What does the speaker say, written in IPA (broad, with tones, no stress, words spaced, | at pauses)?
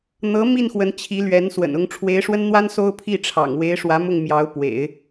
n̪ɤ˧˥ mi˥˩nxwə˧˥nt͡ɕʰi˧˥ lɥɛ˧˥nswə̰˨˩nʊ˧˥ŋ ʈ͡ʂʰwe˧˥ɪ̯ʂwə˥nn̪wa˥n so˥ʊ̯pʰi˥˩ʈ͡ʂʰɑ̰˨˩ŋ we˧˥ɪ̯ʂwä˧˥mʊ˥˩ŋ mjɑ˧˥ʊ̯pwḛ˨˩˦ɪ̯